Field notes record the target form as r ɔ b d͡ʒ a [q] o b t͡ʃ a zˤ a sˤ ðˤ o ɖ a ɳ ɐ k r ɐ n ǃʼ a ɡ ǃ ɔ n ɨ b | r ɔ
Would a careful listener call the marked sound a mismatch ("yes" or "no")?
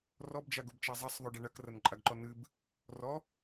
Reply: yes